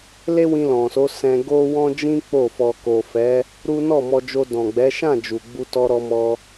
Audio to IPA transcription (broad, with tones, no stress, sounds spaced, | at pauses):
l e˦ w ĩ˧ l ɔ̃˨ s o˨˦ s ɛ̃˧ ɡ o˦ w ɔ̃˦ d͡ʒ ĩ˦ k͡p o˦˨ f ɔ˧ k o˨ f ɛ˨˦ | ɾ u˦ n ɔ˦˨ m ɔ˧ d͡ʒ o˧ d ɔ̃˨ ɡ͡b ɛ˨˦ ʃ ã˦˨ d͡ʒ u˨ ɡ͡b u˧ t ɔ˧ ɾ ɔ˧ m ɔ˧